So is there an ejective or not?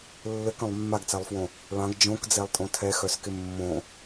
yes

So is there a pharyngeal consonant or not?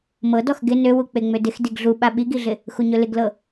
no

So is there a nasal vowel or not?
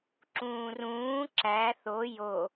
yes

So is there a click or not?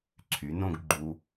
yes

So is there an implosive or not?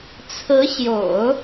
no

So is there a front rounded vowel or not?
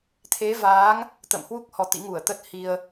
no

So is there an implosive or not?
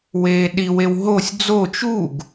yes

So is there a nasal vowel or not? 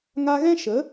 yes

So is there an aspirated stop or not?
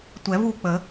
no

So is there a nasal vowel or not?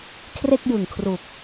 no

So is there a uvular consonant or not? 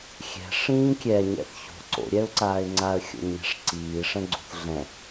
no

